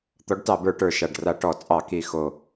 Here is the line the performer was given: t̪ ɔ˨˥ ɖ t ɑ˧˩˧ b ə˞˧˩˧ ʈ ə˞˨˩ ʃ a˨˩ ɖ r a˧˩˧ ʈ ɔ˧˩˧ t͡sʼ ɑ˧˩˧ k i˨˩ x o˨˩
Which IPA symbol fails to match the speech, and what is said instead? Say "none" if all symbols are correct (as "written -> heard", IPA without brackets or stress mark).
none